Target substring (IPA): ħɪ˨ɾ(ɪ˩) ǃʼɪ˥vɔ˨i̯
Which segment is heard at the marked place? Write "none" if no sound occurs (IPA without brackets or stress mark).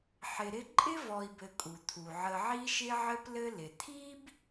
ɪ˦